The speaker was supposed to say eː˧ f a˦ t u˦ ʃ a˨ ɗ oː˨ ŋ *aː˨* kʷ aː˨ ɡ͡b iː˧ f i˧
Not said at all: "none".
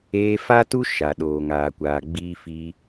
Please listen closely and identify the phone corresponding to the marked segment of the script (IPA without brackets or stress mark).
aː˨